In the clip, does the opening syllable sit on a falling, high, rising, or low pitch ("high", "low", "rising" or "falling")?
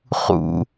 low